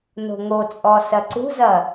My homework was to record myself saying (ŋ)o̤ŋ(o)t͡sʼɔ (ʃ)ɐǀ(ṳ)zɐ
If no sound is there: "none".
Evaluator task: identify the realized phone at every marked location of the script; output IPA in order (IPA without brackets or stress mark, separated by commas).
n, o, s, ṳ